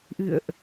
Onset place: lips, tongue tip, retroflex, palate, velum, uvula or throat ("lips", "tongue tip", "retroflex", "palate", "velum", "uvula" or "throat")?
throat